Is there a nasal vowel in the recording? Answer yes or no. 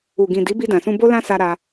yes